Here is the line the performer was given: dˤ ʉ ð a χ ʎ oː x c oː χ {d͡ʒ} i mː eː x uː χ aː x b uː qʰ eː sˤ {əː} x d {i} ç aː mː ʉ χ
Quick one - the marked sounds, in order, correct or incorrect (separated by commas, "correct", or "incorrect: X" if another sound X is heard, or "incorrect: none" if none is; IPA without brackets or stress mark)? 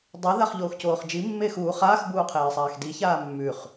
correct, incorrect: aː, correct